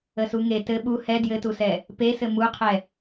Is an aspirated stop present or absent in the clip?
present